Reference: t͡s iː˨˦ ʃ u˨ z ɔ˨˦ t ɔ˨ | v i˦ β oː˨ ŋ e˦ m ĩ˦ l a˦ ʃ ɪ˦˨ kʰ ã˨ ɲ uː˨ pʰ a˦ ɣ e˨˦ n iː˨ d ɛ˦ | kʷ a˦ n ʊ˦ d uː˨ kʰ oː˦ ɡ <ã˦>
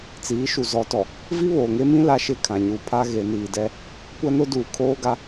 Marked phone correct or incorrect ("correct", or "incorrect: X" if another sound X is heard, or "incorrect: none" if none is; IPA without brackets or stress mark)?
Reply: incorrect: a˦